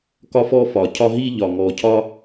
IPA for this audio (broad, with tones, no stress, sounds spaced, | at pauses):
k ɒ˥ f ɔ˥ f ɒ˨˩ cʰ ɒ˥ ɦ i˥ ʎ ɒ˨˩ ŋ ɔ˨˩ cʰ ɒ˥